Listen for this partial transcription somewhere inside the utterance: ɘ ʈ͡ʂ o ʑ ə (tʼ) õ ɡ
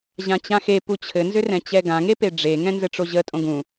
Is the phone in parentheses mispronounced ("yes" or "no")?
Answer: no